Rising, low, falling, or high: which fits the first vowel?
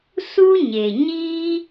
high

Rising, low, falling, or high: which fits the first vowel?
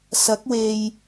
rising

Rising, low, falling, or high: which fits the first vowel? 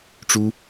high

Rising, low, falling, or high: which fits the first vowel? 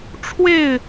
falling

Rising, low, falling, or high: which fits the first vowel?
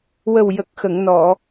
low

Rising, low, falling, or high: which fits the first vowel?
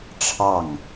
falling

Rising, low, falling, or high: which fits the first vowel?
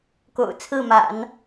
low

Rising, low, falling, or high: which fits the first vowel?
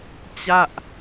falling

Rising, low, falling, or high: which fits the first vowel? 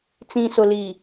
low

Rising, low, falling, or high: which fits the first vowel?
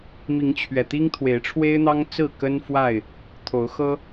rising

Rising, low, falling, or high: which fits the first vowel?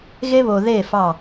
high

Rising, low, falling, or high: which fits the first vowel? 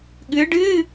rising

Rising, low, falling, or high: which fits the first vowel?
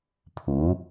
rising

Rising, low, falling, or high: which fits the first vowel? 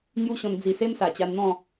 high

